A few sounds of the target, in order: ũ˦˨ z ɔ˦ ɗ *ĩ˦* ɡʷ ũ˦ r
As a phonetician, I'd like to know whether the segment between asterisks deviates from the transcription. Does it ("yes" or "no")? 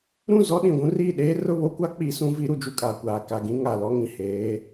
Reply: yes